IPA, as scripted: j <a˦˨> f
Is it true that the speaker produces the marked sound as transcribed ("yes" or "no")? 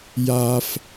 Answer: no